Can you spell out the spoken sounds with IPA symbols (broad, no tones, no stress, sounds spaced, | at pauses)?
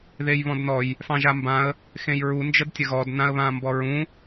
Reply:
ð e j β ɔ̃ d n ɔ j | f ɑ̃ ʒ a m b ã ə̯ | x ẽ j ɹ u n d͡ʒ ə d tʲ ə ɣ ɔ d n ã ə̯ β ãː m b ɔ ɹ ũ